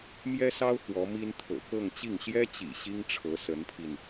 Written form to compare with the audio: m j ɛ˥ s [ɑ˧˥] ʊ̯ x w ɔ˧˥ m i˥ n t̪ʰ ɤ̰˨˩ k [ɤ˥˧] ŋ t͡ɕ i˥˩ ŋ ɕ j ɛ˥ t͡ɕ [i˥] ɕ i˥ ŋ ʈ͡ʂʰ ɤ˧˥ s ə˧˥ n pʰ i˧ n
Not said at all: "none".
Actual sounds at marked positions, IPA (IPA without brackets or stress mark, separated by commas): ɑ˥, ɤ˥˧, ḭ˨˩